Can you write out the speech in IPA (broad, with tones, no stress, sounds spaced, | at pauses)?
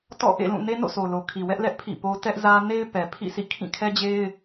t ɔ̰˦˨ ʔ ḛ˦˨ l ũ˦˨ n e˦ n o̰˦˨ sʰ o˨ l o˨ kʰ i˨ w ɛ˦ ʔ l ɛ˦ ʔ pʰ ḭ˦˨ p o˦ t ɛ˦ ʔ z ä˦ n e˦ ɪ̯ p ɛ˨ pʰ ḭ˦˨ sʰ ḭ˦˨ kʰ ĩ˦˨ kʰ ɛ˦ d͡ʑ e˦ ɪ̯